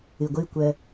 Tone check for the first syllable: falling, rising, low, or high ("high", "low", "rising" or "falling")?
low